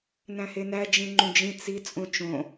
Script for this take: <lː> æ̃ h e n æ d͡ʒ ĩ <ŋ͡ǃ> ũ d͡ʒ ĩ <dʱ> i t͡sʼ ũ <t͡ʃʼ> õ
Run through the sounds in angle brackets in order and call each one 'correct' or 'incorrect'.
incorrect, correct, incorrect, incorrect

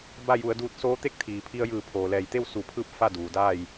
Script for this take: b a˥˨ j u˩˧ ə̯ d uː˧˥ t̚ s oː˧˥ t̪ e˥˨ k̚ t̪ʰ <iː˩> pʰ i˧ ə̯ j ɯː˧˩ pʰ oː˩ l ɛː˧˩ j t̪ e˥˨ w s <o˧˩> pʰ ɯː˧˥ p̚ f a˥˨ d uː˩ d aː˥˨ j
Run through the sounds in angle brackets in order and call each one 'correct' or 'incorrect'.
correct, incorrect

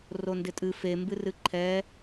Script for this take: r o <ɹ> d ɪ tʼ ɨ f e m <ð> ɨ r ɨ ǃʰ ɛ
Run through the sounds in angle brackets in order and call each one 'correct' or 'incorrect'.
incorrect, incorrect

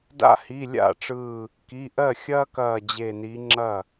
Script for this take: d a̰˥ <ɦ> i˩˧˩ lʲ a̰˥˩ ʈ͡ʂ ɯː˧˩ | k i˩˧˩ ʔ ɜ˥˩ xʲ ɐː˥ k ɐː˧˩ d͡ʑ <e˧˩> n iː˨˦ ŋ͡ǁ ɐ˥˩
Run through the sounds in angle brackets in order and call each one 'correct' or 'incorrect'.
incorrect, correct

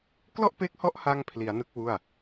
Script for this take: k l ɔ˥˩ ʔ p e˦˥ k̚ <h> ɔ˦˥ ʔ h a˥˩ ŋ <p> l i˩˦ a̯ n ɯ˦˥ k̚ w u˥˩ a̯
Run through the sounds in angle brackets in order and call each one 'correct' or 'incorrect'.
correct, incorrect

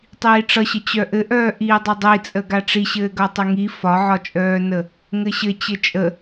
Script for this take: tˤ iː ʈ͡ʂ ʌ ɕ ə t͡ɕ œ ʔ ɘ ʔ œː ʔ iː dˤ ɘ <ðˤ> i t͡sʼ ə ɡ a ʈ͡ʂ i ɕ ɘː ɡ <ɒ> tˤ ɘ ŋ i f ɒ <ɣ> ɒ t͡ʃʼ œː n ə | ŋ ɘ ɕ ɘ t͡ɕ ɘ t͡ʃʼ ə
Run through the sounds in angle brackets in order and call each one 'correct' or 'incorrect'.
incorrect, incorrect, incorrect

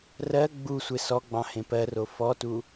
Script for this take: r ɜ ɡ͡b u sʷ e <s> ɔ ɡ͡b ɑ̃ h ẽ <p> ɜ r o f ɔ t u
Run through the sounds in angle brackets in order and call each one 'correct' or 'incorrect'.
correct, correct

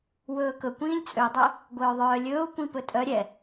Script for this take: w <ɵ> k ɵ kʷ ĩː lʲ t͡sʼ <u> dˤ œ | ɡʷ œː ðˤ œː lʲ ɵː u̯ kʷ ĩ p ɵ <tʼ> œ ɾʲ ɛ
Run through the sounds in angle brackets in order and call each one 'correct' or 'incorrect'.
incorrect, incorrect, correct

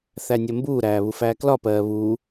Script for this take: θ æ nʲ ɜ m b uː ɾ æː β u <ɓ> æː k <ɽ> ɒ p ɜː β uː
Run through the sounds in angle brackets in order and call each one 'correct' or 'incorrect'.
incorrect, incorrect

